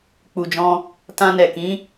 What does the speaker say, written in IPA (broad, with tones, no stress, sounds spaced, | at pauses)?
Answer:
k͡p u˨ d͡ʒ ɔ̃˧ | t ã˧ n ɛ˨ k ĩ˨˦